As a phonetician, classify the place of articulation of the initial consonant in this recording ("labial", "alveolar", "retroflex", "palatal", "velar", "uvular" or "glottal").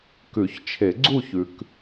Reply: velar